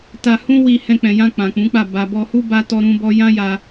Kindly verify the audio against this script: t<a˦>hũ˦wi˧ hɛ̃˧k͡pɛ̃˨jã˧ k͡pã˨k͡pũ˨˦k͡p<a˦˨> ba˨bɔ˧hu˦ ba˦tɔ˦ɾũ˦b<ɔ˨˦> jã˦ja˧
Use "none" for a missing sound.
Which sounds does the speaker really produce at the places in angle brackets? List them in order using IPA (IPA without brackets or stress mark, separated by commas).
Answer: a˧, a˦˨, ɔ˦